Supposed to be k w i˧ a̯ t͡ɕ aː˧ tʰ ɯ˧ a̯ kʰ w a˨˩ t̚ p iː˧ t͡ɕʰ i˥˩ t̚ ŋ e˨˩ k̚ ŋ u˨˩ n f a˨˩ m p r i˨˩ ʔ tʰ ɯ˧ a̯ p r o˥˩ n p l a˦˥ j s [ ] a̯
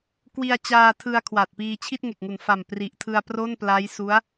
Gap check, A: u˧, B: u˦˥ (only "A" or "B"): B